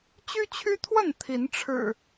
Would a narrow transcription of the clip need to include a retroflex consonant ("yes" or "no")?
yes